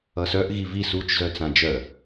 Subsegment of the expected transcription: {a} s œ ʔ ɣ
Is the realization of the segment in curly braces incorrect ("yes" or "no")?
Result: yes